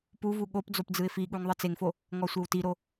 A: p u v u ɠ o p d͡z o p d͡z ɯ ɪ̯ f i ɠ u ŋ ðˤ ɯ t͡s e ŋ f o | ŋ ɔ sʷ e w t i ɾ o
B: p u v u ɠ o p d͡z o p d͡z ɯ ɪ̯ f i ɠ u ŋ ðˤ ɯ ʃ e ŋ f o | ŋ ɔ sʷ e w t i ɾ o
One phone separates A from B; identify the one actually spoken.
A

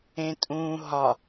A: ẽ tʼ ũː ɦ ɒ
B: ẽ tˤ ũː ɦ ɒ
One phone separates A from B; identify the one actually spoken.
A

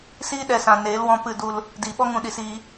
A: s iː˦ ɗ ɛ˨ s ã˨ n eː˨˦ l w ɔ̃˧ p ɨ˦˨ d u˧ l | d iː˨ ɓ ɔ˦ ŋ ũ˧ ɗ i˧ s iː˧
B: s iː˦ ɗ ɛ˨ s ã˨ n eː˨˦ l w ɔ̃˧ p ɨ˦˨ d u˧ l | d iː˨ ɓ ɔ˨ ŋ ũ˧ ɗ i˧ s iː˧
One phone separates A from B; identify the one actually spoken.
A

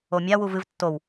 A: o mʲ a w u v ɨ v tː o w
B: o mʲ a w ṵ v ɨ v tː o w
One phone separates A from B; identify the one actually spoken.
A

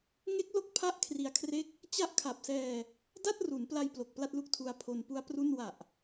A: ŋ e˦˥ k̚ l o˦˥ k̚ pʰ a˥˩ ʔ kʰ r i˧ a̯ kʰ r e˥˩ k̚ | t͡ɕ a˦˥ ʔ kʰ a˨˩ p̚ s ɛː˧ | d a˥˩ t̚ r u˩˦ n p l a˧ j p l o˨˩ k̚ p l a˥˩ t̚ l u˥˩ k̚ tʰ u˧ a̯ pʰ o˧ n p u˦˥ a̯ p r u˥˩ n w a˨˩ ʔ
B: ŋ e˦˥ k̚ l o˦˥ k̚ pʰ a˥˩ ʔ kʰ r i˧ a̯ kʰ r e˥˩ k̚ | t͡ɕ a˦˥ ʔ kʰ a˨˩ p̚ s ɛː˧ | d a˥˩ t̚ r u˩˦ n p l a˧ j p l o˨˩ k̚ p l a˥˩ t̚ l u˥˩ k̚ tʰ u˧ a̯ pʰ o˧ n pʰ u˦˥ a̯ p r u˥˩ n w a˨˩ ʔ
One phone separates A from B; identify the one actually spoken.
A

